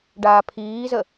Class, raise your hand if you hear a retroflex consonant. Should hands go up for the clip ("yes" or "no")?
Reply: yes